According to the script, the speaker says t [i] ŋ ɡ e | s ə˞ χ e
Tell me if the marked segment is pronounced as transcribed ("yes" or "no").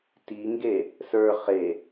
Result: yes